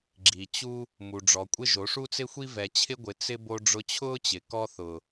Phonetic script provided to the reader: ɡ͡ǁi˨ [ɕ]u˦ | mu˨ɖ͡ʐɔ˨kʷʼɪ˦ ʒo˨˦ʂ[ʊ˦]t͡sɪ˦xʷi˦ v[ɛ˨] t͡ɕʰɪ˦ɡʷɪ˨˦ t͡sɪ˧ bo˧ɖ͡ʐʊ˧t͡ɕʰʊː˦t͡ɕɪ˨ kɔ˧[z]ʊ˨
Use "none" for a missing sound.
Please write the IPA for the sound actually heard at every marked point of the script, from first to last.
t͡ɕ, u˦, ɛ˨, θ

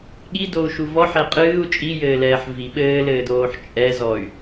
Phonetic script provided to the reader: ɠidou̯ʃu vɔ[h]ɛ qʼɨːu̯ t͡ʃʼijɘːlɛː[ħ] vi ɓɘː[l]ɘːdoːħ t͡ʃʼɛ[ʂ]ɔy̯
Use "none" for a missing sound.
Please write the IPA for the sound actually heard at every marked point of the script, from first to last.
ħ, ħ, l, z

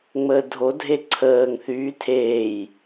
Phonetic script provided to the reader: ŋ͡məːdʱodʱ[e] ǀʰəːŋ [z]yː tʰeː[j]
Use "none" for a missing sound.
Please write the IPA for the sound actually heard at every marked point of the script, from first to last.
e, θ, j

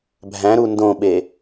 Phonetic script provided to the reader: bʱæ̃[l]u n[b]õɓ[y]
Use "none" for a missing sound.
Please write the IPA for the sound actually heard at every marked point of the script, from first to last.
ɾ, d, e

